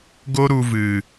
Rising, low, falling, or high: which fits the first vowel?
high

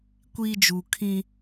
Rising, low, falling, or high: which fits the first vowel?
high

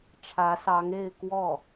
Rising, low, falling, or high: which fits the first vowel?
rising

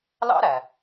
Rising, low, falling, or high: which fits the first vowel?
high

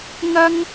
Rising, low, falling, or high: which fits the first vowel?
high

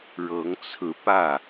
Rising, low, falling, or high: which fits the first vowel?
rising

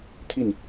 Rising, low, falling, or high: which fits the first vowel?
falling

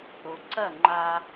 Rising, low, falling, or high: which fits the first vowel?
low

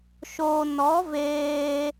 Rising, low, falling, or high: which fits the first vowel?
low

